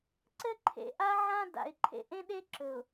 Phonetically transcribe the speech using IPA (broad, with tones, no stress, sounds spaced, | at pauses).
ǀ ɘ˦ ǃʰ ḛ˨ ʔ a˦ ʕ ã˦ d a̰˨ ɪ̯ ǃʰ ḛ˨ ʔ ẽ˦ ɗ e˦ ǁ ɵ˨ ʊ̯